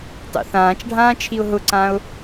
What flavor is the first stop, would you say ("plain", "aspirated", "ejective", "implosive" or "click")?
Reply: plain